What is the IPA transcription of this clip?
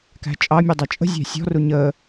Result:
k æ̤ t͡ʃʼ ɑ mʲ u dˤ ɑ t͡ʃʼ ə̤ zʲ æ̤ sʲ ɔ̤ r u ɲ əː

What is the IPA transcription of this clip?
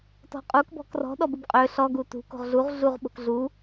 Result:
t ɔ̤ qʼ u k b ɔ̤ k r ɔ̤ ɗ ɔ b u b qʼ ø ɬ ɔ ɡ u t ṳ k o̤ ʁ ɮ u ʁ ɮ u ʁ ɓ o̤ k ɮ u

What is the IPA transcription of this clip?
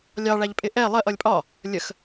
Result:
lʲ ɑ ɭ æ ʎ pʼ ɪ ʔ ɛ lˠ ɜ ʔ ʌ lʲ pʼ ɒ | lʲ ə x

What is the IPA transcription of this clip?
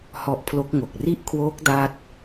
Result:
h ɔ˦˥ ʔ pʰ l o˦˥ k̚ ŋ o˨˩ k̚ r i˥˩ ʔ kʰ w oː˦˥ k̚ d a˥˩ t̚

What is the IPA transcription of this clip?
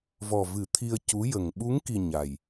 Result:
v ɔ˨˩ v ɨ˨˩˦ t̪ʰ i˧ ə̯ c u˧˥ j ə˨˩ ŋ ɓ u˧˥ ŋ k i˨˩ ɲ a˨˩ j

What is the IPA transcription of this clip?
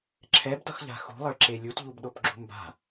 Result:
ǁʰ ɛ b d ʌ x ʎ a̤ x ṳ lˠ ʌ ɭ ǁ e lʲ u t ʎ u b ɗ o p ɡ͡ǁ ṳ m b a̤

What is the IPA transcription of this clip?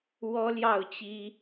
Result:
w ɔ˥ l j ɑ˥˩ ʊ̯ t͡ɕ i˥

